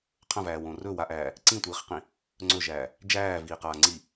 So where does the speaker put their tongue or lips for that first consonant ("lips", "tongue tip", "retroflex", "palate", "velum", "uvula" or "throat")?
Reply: uvula